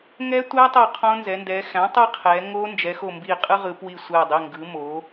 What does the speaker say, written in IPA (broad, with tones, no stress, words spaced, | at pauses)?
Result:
ŋɛ˦˥ tʷæ˦˥tˤo˧˩ qʰõ˦˥nzɛ˩˧ndɛː˩˧ xæ̃˩˥ tˤɯ˦˥qʰɛː˩˧ ŋoː˦˥ nd͡ʒɛ˩˧xo˧˩mbi˧˩ qʼɯ˦˥ʁɯ˩˧pwi˧˩ sʷɛː˧˩dˤi˩˧˩ ŋɡɯ˩˧moː˩˧